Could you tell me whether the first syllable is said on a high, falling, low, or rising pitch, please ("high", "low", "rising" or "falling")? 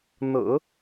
low